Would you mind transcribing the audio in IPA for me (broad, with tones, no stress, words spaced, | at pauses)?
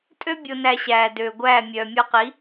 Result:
tʼø˥ bʲo˧næ˧ɕæː˩ døː˩ɡʷæː˥˩ mʲœː˩mʲɔ˧qi˩˥